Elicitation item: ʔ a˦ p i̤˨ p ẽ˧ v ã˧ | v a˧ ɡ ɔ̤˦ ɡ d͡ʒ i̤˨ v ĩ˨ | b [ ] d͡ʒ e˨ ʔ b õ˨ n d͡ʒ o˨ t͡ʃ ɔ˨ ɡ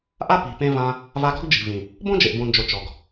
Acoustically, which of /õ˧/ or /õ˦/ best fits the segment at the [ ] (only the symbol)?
õ˦